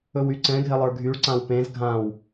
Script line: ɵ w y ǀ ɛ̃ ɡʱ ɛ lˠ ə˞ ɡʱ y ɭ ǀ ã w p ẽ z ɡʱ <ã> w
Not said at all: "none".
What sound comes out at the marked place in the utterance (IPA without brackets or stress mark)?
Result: ã